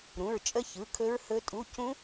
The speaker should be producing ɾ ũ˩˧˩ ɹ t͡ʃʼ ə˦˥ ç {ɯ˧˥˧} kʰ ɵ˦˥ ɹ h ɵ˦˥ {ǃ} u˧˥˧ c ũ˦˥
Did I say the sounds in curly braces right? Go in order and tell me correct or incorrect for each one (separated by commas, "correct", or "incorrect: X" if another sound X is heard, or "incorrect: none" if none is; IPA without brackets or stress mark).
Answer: incorrect: ɯ˩˧˩, incorrect: tʼ